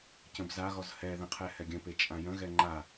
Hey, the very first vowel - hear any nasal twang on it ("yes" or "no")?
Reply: yes